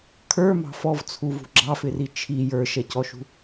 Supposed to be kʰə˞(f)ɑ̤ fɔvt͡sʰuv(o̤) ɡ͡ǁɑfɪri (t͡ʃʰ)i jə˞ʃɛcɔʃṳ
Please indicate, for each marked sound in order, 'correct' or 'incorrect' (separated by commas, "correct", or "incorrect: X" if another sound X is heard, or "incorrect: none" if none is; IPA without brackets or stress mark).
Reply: incorrect: m, incorrect: ṳ, correct